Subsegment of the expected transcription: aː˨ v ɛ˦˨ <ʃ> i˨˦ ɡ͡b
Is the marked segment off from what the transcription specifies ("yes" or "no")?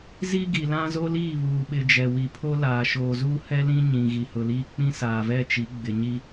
yes